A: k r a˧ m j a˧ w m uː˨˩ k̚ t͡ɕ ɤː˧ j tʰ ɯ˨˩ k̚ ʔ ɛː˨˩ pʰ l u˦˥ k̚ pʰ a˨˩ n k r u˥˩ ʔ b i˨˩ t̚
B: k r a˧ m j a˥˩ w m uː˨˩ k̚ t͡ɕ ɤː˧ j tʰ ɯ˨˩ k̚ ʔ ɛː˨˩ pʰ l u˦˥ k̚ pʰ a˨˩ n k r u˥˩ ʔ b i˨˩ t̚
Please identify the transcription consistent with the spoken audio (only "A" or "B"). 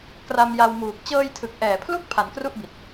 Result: A